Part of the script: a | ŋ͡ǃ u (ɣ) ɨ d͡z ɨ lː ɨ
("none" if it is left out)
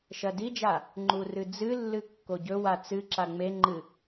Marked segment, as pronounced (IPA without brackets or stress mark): r